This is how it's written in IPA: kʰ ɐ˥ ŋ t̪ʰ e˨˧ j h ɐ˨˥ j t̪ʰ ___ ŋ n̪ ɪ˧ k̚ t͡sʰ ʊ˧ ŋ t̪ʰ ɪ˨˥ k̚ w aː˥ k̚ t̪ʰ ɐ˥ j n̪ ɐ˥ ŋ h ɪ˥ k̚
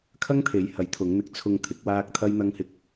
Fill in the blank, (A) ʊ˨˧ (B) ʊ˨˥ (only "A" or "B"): A